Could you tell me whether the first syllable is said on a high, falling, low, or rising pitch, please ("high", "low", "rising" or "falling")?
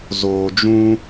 low